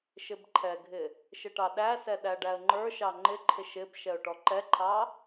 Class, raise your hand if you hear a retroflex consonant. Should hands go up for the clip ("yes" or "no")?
yes